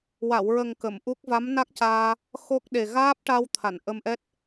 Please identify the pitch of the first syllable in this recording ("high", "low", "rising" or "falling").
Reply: low